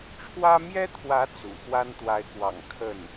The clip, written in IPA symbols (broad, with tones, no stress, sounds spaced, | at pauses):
ʈ͡ʂʰ w ä˥ m j ɛ˥ t̪ʰ w ä˧˥ t͡s ṵ˨˩ x w a˥ n t̪ w a˧˥ ɪ̯ k w ɑ̰˨˩ ŋ kʰ ə˥˩ n